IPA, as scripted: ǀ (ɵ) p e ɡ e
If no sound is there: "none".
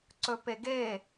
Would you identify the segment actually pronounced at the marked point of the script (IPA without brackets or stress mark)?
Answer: ɵ